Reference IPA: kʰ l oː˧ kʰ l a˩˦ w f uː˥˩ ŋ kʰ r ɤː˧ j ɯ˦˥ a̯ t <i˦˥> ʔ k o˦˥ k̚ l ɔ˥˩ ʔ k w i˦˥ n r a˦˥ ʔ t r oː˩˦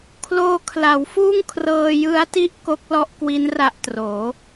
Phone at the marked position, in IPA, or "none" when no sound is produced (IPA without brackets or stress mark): i˥˩